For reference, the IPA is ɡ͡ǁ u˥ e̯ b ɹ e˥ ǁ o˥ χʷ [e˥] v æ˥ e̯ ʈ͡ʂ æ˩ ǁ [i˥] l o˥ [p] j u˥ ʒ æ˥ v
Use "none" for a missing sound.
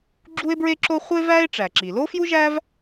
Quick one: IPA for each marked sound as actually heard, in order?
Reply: e˥, i˩, f

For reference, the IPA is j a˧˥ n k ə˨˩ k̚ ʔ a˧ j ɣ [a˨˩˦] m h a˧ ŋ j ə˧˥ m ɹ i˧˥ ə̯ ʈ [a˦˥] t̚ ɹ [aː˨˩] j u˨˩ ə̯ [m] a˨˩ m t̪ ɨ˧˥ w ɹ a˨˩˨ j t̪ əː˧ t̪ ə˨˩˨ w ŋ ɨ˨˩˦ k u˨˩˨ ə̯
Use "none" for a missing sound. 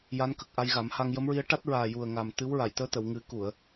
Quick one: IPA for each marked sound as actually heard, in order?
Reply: a˨˩˦, a˦˥, aː˨˩, ŋ

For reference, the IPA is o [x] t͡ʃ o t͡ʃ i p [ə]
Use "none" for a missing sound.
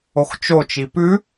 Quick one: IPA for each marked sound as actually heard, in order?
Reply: x, ʉ

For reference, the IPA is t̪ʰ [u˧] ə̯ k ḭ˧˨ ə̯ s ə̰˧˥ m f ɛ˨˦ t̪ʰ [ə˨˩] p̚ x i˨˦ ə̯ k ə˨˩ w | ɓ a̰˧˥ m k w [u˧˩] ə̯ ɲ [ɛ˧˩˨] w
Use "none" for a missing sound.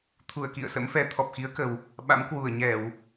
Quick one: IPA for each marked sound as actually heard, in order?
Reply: u˧˩, ɔ˨˩, u˧˩, ɛ˧˩˨

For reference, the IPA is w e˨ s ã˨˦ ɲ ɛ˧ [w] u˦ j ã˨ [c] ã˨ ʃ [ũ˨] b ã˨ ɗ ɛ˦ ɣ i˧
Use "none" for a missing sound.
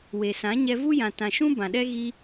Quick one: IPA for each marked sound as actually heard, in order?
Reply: v, t, ũ˦

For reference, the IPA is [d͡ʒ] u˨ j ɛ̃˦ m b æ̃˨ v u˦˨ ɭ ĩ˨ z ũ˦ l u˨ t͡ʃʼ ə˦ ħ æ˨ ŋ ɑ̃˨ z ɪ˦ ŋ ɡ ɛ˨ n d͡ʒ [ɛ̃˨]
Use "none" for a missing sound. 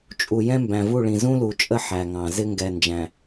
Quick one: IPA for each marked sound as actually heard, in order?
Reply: t͡ʃʼ, æ̃˨

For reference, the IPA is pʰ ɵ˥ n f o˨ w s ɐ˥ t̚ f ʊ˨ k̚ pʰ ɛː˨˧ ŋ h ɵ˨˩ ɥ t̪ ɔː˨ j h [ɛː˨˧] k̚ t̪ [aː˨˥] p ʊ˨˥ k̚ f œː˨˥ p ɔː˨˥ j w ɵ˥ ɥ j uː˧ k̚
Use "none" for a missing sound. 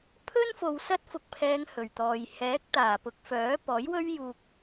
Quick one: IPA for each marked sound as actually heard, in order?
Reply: ɛː˨˥, aː˨˩

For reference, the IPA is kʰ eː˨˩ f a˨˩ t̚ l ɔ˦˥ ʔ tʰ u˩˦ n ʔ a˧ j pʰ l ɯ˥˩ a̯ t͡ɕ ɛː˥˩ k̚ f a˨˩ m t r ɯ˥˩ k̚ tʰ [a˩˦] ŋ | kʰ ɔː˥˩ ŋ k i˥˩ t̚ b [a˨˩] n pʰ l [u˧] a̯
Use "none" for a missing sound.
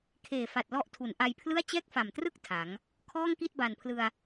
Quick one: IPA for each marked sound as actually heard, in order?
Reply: a˩˦, a˨˩, ɯ˧

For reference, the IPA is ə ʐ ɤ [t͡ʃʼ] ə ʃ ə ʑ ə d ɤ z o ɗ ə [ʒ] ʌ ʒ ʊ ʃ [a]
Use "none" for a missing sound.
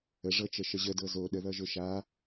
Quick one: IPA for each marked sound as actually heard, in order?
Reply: t͡ʃ, ð, a

